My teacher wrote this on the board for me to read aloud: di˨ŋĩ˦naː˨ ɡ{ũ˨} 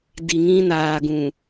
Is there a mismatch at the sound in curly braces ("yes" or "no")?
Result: no